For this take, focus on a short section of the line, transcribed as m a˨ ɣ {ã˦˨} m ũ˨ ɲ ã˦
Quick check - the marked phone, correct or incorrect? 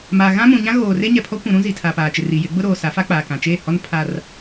incorrect: ã˦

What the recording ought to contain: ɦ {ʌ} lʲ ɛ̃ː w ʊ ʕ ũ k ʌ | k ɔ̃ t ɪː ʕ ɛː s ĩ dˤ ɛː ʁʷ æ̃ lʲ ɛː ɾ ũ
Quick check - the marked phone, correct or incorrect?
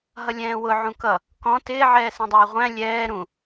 correct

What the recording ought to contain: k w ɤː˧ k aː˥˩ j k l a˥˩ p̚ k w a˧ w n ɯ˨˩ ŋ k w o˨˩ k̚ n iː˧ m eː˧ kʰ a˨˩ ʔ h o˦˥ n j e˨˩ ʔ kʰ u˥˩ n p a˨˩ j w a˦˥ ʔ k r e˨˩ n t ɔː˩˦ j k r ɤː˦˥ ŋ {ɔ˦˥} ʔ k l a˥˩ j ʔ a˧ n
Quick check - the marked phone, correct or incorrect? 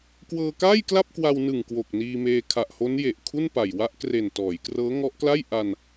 correct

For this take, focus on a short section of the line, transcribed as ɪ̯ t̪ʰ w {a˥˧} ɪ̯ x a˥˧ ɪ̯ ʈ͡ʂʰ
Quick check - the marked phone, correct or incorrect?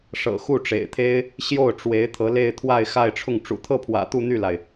correct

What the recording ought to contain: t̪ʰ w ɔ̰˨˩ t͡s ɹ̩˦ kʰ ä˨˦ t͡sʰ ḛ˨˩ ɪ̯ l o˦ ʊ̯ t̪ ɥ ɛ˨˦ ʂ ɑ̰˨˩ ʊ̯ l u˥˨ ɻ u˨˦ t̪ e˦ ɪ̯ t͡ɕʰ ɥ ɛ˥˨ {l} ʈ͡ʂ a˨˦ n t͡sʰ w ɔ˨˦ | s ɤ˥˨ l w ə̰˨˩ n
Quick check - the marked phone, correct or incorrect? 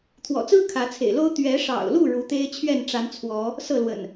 incorrect: n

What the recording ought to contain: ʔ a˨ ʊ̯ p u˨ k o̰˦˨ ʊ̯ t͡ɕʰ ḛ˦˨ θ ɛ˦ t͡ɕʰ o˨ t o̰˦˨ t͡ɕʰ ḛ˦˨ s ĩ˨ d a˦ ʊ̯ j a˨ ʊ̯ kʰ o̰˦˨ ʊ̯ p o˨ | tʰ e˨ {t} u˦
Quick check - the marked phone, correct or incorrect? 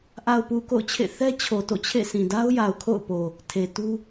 correct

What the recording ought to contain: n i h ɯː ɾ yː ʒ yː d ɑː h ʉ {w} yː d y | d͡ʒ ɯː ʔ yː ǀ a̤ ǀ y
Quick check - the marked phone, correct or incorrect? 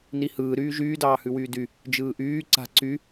correct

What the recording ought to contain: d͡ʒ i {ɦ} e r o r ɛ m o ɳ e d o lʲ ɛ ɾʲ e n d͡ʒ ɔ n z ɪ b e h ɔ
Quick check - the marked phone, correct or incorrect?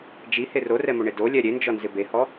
incorrect: h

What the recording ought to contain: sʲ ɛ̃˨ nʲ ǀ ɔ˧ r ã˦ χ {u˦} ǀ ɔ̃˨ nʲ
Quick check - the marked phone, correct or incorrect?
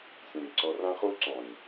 correct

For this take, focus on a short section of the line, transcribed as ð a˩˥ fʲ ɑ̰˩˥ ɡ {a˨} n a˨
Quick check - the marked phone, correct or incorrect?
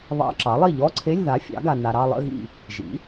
correct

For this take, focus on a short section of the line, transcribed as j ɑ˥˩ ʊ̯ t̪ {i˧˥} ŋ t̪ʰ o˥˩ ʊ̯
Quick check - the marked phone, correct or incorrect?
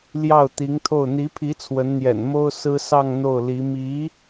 correct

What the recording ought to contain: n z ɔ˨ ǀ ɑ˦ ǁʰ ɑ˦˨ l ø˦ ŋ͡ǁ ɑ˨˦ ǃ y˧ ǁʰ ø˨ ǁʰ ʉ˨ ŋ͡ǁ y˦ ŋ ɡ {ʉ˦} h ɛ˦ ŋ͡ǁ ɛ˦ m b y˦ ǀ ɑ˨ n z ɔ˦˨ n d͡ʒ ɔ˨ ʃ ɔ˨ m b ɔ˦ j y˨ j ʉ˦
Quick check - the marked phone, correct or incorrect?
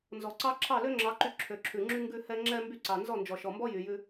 correct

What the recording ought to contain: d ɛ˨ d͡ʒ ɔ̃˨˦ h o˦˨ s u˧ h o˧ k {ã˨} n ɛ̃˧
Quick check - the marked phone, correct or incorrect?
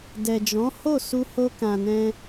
correct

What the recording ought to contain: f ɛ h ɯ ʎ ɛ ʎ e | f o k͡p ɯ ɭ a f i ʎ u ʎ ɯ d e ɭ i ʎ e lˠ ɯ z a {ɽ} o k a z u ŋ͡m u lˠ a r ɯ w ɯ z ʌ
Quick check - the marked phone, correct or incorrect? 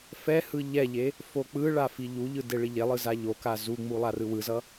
incorrect: ʎ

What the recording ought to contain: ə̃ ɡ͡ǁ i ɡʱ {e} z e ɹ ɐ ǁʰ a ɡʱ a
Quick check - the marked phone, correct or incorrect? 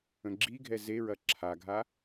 incorrect: ɛ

